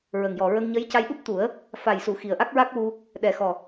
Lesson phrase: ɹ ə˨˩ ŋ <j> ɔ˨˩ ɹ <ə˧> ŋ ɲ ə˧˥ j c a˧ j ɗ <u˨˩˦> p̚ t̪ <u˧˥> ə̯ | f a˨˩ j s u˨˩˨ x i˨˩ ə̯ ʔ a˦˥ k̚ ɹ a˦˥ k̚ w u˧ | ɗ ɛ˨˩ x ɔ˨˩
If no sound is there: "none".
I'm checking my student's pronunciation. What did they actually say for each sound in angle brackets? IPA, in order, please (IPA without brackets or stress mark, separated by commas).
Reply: j, ə˧, u˦˥, u˨˩˦